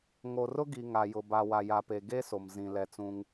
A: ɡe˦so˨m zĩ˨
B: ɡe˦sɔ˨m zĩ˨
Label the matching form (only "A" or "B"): A